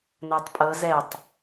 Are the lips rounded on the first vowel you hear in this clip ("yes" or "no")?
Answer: no